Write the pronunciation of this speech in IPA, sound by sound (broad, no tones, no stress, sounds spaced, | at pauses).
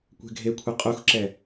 kʷ ɛ̤ ɡʱ e kʷʰ ɛ qʼ u x ǁ ɛ